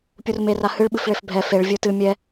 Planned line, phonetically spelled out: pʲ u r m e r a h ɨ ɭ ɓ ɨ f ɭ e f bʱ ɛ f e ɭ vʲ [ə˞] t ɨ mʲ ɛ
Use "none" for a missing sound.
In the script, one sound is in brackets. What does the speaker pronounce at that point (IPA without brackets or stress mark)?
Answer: ə˞